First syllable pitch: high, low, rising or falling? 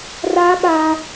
high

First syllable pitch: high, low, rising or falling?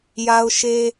high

